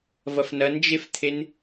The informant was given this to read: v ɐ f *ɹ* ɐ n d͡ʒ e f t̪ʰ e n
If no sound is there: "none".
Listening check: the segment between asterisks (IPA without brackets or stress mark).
n